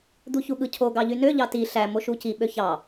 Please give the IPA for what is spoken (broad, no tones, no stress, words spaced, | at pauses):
d̪uçuɠɯcʰo ɡɑʎynø ʎɑti ɬæ moʃuci ɓøçɑ